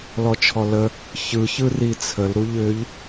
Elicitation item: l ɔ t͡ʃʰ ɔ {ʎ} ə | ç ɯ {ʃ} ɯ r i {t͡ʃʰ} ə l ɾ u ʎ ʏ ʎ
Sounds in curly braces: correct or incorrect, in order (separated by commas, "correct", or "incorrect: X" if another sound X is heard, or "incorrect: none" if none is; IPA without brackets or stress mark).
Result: incorrect: l, incorrect: ç, incorrect: t͡sʰ